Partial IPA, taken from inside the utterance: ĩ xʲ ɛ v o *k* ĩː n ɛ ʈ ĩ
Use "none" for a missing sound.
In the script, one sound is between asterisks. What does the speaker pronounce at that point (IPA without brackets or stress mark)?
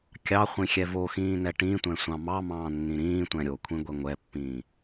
x